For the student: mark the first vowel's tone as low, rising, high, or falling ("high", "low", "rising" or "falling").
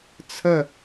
falling